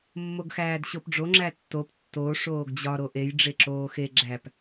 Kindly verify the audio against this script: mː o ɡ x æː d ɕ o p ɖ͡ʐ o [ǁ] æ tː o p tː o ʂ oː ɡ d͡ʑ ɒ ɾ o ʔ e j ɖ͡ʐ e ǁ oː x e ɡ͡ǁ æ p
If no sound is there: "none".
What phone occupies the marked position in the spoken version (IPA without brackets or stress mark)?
ŋ͡ǁ